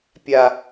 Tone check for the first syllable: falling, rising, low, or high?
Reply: low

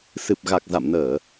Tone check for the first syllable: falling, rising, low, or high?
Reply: low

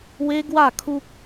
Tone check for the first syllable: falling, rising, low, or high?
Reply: high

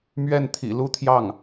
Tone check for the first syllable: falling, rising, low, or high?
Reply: falling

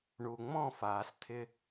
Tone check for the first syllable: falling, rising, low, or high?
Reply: low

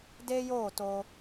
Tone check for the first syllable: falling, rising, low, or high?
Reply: high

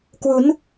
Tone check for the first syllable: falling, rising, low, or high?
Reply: rising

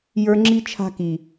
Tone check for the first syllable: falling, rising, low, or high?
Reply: high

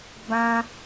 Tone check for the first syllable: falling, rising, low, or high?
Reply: high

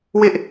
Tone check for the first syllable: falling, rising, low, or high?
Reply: high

